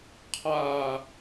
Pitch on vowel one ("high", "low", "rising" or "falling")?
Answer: falling